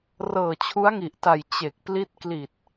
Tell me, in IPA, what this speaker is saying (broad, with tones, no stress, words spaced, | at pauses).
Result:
rɤː˨˩t͡ɕʰu˦˥a̯ŋi˨˩ʔta˨˩j t͡ɕe˨˩k̚pli˦˥t̚ kli˨˩t̚